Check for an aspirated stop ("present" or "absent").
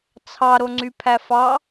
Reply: present